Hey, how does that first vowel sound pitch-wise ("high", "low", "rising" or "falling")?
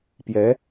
rising